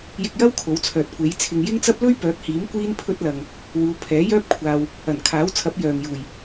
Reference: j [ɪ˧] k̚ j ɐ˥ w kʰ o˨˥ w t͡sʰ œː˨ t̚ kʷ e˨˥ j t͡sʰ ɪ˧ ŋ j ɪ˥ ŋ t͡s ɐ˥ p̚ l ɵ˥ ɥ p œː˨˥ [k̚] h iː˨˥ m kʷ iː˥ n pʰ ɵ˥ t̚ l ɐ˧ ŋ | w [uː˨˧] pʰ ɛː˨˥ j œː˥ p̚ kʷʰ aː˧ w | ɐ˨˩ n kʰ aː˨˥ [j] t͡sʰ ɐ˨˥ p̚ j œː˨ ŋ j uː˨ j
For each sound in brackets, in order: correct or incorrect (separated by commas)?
correct, correct, correct, incorrect